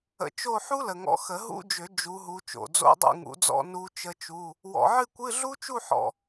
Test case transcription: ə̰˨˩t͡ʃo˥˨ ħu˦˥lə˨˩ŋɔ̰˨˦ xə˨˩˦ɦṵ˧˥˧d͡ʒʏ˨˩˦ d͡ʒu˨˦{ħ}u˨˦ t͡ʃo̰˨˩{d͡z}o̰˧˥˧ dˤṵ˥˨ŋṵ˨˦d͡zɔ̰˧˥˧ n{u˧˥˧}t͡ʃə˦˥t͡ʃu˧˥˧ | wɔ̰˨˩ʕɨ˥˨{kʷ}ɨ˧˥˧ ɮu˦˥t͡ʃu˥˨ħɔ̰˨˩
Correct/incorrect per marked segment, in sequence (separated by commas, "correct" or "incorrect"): incorrect, correct, incorrect, correct